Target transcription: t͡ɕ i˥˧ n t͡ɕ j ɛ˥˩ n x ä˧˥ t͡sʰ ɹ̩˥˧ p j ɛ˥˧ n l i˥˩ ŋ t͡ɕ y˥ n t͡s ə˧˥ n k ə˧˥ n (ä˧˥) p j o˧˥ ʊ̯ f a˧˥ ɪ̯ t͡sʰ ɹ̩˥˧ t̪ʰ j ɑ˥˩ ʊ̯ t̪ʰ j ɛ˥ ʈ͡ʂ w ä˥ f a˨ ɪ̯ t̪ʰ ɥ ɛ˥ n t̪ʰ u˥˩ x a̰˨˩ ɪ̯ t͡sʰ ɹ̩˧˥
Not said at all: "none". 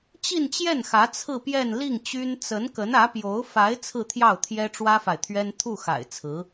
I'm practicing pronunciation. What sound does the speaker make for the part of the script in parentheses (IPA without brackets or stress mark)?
ä˧˥